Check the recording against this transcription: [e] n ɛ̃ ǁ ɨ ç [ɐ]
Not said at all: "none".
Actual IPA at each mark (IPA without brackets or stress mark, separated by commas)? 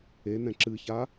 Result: e, a